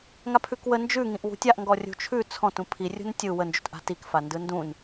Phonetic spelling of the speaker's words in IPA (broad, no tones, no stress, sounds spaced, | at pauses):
ŋ a pʰ ʉ k w ə n d͡ʒ ʉ ŋ ĩ ʔ w ṳ tʲ a ʔ ŋ ɡ ɔ rʲ ṳ t͡ʃʰ ʉ t͡sʰ ɔ̃ t ũ pʰ i rʲ ṳ n tʲ ɯ w ə n d͡ʒ ṳ t ʔ a̤ t i k f a n d ɯ n d ũ n